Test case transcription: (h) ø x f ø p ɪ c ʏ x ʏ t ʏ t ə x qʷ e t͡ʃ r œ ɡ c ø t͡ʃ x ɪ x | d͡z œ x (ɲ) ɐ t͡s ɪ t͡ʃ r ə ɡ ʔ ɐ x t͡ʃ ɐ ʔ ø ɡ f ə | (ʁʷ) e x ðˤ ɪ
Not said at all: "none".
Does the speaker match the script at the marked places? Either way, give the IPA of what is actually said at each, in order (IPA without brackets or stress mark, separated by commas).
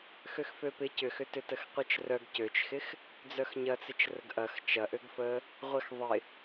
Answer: x, ɲ, ʁʷ